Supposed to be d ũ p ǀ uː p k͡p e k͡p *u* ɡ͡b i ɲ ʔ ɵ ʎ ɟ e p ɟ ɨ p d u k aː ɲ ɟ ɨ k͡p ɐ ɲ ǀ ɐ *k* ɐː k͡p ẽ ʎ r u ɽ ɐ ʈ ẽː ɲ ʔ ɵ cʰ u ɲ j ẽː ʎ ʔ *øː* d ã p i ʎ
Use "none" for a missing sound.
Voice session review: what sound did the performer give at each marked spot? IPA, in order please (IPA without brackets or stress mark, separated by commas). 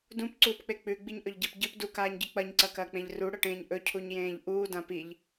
ʉ, k, uː